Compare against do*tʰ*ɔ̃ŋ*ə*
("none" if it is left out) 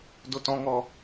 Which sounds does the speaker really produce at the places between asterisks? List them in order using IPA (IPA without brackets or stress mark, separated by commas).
t, ɔ